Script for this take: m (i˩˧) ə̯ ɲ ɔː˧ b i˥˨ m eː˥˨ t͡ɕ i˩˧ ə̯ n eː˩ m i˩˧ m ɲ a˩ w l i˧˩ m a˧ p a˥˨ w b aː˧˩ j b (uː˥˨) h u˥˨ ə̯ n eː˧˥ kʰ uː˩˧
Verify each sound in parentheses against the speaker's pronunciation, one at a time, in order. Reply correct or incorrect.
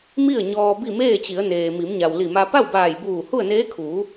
incorrect: i˥˨, incorrect: uː˧˩

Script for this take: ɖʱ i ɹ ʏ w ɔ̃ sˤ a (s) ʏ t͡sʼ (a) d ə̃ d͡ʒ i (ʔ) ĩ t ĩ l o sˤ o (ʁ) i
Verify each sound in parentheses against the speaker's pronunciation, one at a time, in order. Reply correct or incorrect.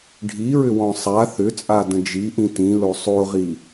incorrect: θ, correct, correct, correct

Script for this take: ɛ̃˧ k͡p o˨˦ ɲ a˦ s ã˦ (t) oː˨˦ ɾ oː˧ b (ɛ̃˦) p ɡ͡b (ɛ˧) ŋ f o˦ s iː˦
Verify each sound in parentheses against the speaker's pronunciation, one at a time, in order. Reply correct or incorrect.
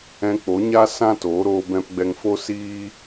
correct, incorrect: ɛ̃˧, correct

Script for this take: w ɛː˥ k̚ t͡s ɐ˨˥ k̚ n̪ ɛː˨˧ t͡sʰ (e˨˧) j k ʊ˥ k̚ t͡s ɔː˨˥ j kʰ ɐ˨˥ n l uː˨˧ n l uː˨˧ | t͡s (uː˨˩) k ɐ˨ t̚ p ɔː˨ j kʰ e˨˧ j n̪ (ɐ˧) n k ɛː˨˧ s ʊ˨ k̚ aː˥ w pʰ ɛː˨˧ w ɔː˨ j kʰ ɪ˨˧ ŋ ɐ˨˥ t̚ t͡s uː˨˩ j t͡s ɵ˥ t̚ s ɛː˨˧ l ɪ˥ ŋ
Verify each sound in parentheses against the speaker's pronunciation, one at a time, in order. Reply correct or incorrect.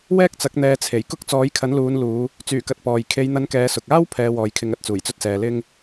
incorrect: e˨˩, incorrect: yː˨˩, correct

